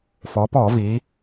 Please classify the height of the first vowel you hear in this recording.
mid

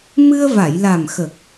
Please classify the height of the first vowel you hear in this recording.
high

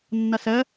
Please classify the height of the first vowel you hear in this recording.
mid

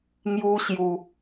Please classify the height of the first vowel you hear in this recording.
high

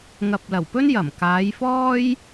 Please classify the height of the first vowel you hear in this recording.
low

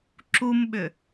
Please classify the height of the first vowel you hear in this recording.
high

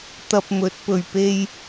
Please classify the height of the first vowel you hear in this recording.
low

